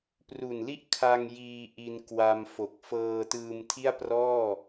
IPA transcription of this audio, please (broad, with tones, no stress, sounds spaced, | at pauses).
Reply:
p r u˨˩ n l i˥˩ ʔ kʰ a˧ ŋ j iː˧ ʔ i˧ n k w a˧ m f o˨˩ k̚ f ɤː˧ t ɯː˧ m tʰ i˥˩ a̯ p r ɔː˥˩